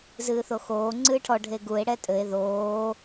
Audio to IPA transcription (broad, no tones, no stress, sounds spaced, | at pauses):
z ɨː θ o x oː ŋ͡ǀ ɨː ʈʰ ɔ ɖʱ e ɡ u e̯ ɽ ɛ tʼ ɘ e̯ ð oː